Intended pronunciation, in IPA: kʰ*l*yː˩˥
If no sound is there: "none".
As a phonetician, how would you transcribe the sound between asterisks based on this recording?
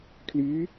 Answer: l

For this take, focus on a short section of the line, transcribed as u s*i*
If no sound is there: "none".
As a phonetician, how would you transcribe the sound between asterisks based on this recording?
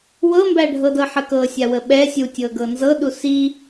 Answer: i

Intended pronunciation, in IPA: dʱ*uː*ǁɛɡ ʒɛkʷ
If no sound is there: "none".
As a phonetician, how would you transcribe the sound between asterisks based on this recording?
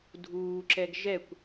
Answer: uː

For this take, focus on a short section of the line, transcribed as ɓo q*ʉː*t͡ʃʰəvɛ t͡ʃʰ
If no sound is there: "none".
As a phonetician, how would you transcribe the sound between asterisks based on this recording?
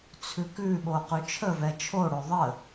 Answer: ʉ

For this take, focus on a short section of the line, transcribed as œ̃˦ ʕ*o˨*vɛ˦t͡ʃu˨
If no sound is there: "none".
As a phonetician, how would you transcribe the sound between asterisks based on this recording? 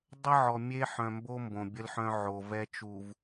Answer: o˨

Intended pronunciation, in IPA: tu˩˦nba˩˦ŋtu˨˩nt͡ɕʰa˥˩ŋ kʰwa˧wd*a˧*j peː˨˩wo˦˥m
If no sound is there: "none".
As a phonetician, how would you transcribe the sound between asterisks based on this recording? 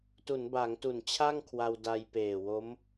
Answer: a˧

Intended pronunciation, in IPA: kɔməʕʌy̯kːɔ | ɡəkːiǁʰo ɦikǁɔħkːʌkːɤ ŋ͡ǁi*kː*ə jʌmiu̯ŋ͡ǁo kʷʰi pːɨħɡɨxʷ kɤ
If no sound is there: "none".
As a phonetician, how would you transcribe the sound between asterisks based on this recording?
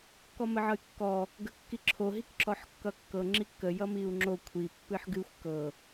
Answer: kː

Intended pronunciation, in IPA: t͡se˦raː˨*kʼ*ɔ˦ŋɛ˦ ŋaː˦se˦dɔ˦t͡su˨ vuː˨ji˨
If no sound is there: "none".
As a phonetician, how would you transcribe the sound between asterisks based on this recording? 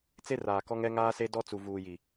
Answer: k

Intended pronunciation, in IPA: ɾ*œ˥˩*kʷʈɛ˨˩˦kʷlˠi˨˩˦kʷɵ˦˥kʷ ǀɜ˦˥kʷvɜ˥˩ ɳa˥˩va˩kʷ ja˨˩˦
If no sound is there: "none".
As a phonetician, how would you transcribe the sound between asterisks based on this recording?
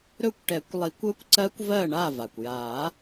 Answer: ɵ˥˩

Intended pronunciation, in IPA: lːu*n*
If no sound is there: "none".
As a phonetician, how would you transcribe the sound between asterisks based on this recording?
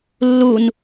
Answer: n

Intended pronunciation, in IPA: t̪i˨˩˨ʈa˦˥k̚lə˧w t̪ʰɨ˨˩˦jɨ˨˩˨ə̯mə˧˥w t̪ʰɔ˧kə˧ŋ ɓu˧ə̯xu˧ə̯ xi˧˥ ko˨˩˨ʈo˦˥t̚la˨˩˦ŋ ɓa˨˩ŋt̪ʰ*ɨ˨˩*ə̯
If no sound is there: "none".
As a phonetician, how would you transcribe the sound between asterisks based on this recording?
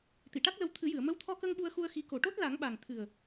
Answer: ɨ˨˩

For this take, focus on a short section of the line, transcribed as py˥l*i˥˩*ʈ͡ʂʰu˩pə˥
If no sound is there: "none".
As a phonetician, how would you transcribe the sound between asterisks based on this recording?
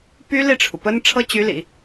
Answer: i˥˩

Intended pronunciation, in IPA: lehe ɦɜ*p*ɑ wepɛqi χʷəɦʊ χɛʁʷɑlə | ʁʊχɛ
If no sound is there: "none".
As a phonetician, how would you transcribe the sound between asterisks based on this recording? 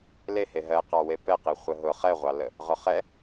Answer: q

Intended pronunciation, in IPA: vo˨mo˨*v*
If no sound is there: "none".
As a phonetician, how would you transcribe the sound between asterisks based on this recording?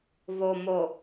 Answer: none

